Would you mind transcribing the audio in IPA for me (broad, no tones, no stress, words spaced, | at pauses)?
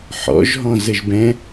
ħɔ̰ʒɦɔ̃ zəʒbɛ̃